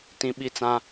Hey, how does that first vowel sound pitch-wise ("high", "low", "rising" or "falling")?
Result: high